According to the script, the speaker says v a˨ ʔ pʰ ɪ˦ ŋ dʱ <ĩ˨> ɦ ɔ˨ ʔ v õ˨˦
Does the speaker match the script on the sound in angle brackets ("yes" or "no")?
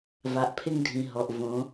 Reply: yes